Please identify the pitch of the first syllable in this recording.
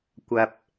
low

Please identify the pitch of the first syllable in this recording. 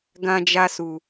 low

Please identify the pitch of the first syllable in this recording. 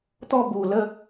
falling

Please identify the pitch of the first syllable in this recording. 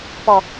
high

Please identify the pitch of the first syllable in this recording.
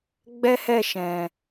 high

